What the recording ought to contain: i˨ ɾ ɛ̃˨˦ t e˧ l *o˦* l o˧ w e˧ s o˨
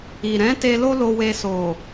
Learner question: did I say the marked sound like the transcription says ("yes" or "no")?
yes